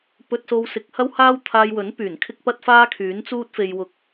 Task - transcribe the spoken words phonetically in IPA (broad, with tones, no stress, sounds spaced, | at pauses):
p ɵ˧ t̚ s o˧ w s ɪ˨˥ k̚ h ɐ˥ w h aː˥ w t̪ʰ aː˧ j w ɵ˨˥ n p yː˨˩ n kʰ ɪ˥ k̚ p ɐ˥ t̚ f aː˥ kʰ yː˨˥ n t͡s uː˥ t̚ f e˧ j w ʊ˧ k̚